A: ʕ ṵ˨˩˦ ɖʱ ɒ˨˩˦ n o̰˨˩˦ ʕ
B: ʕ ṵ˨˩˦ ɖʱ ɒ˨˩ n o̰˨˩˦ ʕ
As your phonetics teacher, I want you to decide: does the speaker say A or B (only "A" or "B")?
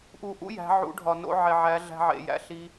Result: B